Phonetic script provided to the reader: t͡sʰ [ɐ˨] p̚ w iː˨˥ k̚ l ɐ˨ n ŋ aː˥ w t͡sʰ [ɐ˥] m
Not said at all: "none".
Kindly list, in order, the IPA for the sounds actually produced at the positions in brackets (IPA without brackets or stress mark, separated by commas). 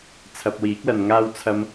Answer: ɐ˨, ɐ˧